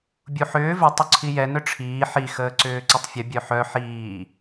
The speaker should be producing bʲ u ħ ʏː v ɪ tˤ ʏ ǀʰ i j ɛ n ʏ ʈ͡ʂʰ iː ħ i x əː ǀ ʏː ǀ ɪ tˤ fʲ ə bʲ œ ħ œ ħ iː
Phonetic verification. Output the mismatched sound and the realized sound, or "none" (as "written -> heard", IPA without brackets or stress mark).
none